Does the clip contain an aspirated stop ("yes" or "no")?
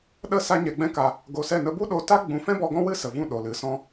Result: no